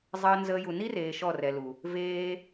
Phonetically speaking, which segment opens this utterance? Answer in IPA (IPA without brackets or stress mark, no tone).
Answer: zˤ